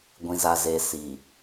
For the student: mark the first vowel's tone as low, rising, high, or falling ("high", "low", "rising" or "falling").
low